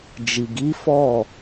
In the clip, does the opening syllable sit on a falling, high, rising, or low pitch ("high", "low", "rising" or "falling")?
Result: low